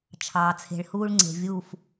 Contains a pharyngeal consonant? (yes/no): no